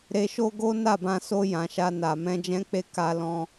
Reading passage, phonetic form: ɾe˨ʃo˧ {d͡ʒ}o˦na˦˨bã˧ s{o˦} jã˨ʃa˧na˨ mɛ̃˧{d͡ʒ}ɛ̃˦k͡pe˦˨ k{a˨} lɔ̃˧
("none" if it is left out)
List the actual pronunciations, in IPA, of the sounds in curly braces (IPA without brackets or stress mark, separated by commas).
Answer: ɡ, o˧, d͡ʒ, a˧